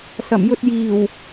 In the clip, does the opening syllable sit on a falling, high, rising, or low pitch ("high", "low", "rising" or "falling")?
low